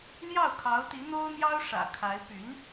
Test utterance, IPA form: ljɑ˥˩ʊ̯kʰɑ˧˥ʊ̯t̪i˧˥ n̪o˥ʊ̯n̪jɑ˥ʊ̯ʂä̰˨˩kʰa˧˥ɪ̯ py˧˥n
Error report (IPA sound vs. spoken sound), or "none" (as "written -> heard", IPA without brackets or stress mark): none